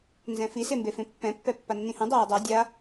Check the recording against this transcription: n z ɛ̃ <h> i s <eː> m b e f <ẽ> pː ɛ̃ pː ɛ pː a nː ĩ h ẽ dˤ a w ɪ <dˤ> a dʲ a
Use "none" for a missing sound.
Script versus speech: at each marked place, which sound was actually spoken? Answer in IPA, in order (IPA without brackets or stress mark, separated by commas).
f, e, ẽ, dˤ